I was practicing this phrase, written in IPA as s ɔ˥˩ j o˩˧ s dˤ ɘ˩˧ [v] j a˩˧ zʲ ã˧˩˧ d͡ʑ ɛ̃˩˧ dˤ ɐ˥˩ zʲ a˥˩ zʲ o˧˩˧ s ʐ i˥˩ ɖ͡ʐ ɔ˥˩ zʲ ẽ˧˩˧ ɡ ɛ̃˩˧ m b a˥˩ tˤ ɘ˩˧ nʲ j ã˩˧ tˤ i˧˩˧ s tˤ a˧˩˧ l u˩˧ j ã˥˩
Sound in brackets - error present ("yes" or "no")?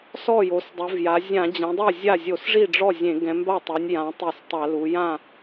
no